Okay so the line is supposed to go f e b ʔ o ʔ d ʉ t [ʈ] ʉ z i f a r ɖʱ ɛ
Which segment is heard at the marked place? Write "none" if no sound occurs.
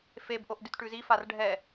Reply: ʈ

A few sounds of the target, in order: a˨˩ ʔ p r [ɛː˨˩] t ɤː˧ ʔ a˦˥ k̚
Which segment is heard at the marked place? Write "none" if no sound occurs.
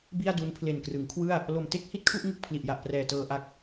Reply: ɛː˨˩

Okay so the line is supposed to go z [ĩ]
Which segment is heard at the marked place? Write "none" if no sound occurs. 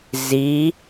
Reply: i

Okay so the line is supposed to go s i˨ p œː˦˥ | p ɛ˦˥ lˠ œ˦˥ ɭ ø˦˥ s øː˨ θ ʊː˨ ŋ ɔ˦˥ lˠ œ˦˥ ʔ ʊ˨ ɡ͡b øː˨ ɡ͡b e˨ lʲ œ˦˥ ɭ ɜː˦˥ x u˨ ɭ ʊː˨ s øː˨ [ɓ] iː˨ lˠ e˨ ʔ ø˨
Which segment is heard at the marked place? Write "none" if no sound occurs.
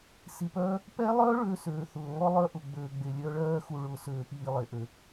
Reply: p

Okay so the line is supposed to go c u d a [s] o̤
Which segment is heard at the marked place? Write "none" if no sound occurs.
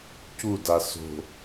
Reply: s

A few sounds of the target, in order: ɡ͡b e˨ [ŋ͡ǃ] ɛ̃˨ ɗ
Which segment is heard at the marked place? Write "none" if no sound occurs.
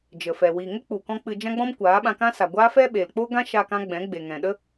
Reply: ŋ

